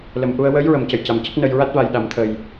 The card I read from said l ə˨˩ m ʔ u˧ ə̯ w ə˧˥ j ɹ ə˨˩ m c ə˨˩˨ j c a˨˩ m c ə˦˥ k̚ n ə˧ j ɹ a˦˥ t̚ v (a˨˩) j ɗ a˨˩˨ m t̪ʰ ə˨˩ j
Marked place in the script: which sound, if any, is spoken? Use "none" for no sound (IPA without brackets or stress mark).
a˨˩